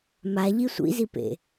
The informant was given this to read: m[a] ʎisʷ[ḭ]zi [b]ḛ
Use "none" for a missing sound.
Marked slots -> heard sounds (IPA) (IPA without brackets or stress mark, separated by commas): a, ḭ, p